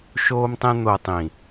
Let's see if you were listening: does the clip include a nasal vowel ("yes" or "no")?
yes